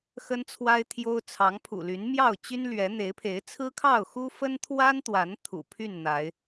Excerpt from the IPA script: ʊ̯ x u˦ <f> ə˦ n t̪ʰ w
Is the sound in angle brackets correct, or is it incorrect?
correct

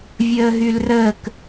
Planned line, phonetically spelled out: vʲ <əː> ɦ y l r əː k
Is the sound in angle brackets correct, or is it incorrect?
correct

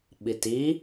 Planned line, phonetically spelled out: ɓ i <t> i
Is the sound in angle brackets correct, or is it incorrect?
correct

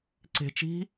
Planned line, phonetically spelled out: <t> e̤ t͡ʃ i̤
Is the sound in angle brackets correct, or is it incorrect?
incorrect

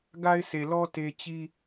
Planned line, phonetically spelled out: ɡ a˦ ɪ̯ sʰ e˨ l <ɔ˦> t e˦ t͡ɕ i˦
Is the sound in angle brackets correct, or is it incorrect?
correct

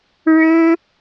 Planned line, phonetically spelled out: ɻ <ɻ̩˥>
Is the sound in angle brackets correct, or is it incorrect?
correct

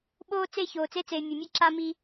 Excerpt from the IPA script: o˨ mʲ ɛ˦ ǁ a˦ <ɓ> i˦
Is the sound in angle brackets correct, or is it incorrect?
incorrect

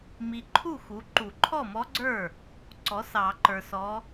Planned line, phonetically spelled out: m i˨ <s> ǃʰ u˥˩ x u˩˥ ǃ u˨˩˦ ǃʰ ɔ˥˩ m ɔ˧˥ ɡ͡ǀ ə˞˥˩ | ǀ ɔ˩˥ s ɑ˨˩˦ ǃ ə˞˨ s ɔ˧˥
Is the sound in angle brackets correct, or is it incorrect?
incorrect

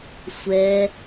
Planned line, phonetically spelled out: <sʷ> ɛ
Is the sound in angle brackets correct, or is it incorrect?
correct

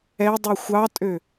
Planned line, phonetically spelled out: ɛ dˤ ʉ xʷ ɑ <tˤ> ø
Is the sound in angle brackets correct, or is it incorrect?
incorrect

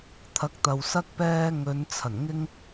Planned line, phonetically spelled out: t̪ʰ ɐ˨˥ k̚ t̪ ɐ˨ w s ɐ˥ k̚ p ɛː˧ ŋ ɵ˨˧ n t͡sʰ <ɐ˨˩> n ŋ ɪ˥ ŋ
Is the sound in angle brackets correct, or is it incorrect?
correct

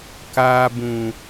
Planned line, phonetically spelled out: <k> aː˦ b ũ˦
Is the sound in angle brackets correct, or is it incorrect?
correct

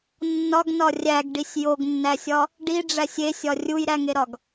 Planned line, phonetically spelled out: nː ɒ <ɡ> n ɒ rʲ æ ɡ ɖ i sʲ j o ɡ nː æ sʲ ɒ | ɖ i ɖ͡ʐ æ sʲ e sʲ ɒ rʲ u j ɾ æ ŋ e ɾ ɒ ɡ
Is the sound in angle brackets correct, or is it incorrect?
correct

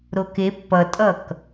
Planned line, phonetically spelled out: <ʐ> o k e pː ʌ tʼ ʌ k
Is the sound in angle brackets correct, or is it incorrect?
incorrect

